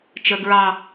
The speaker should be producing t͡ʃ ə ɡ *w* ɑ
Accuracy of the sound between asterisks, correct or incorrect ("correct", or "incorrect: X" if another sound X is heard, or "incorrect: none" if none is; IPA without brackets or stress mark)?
incorrect: ɹ